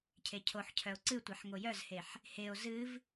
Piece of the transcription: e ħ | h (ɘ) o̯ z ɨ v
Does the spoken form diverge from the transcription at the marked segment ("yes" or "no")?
yes